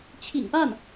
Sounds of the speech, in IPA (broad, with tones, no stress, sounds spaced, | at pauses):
t͡ɕʰ ḭ˨˩ ŋ p a˥˩ n